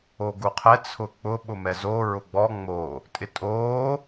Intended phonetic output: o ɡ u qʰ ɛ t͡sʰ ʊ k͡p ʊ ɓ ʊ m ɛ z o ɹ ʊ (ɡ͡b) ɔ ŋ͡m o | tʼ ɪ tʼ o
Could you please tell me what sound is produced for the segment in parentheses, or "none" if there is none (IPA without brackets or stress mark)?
ɡ͡b